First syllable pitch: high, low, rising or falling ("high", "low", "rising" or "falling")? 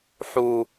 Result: high